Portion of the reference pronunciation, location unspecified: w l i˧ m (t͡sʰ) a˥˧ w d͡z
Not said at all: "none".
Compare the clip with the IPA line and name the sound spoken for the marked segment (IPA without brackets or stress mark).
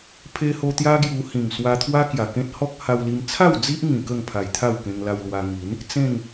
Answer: t͡sʰ